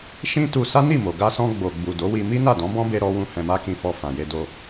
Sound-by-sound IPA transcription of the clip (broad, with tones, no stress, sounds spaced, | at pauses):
ʃ ĩ˦ t u˧ s a˦ n i˦˨ m o˨ ɡ a˧ s ɔ̃˧ ɡ͡b o˨ ɡ͡b u˨ d o˨˦ w i˧ m i˦ n a˦˨ d ɔ̃˨˦ b ɔ̃˦ b e˧ ɾ ɔ˧ w ũ˧ h ɛ̃˧ m a˦ k ĩ˧ f ɔ˧ f ã˨ j e˧ d o˧